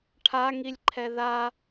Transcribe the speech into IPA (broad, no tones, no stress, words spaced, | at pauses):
ʈʰaŋilʲǃʰɛ ða